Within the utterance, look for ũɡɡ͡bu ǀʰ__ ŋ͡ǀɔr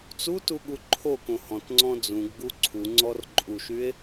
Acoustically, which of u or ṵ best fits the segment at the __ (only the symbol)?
u